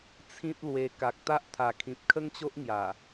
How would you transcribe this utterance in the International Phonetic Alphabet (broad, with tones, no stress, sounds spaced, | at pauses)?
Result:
t͡sʰ ĩ˦ t̚ l w e˧ k a˨ k̚ t̪ a˦ ʔ t̪ʰ a˨˩ kʰ ĩ˨ p̚ kʰ ə˦ ŋ t͡ɕ o˦ ʔ ŋ j a˨˩